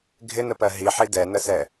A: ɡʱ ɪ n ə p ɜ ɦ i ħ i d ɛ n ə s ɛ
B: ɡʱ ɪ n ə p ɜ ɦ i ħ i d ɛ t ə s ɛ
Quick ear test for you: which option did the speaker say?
A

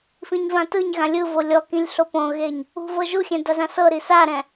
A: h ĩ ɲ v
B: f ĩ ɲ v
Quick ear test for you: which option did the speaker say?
B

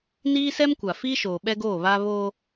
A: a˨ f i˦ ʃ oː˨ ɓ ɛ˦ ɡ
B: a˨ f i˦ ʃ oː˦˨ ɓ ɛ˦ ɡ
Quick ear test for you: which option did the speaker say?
A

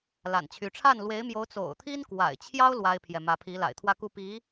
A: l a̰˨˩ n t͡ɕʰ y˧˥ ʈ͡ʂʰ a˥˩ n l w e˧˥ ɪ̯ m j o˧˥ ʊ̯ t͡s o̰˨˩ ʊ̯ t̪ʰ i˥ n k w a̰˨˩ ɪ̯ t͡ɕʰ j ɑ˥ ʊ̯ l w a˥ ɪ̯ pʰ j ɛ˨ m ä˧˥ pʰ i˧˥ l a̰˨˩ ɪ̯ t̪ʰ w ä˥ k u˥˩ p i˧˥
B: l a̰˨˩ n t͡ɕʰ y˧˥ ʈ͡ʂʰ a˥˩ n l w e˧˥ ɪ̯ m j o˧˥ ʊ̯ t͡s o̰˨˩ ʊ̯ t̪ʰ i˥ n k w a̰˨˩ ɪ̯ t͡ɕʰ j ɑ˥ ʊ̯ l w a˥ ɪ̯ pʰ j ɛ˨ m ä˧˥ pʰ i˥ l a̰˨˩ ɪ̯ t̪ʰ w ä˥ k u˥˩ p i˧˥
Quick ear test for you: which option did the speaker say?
A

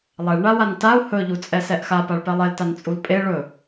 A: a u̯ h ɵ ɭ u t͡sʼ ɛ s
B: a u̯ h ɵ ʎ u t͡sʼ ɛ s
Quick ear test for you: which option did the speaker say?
B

